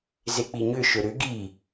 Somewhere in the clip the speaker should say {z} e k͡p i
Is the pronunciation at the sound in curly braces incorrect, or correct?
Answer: correct